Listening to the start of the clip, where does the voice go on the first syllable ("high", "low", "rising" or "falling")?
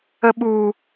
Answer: high